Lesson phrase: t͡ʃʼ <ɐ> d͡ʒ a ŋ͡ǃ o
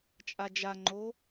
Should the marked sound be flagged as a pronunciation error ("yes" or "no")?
yes